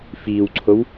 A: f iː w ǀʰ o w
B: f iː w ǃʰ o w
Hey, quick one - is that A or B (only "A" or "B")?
A